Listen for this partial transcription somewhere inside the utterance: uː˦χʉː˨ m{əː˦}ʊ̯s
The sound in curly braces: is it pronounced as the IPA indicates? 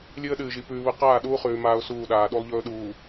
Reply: no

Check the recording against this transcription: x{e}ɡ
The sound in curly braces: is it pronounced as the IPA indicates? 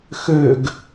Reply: no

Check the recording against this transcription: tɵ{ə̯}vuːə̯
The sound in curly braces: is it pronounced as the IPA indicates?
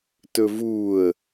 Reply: no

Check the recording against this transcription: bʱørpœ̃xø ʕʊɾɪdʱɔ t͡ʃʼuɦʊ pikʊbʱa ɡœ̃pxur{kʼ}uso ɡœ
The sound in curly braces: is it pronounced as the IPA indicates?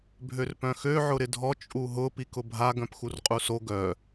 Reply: no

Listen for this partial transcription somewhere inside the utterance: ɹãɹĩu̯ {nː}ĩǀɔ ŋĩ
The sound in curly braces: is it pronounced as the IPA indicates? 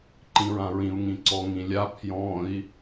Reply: no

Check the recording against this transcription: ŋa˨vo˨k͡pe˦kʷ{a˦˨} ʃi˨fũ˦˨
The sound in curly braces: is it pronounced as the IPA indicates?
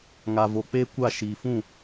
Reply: yes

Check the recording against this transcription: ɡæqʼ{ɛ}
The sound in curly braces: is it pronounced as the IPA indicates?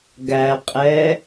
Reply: yes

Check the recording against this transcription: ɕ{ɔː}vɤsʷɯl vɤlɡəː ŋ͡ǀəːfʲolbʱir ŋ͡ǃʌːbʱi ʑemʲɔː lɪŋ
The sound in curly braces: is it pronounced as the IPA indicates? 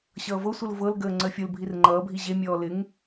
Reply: no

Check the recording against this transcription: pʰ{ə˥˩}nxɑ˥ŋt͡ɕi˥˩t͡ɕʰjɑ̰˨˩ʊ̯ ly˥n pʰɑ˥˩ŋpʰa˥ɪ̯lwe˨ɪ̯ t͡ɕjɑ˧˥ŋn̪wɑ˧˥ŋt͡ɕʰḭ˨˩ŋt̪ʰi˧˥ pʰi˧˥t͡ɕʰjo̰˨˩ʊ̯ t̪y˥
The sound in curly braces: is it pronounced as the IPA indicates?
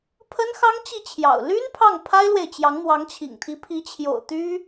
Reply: no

